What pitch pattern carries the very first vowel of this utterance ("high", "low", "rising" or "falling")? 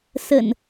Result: low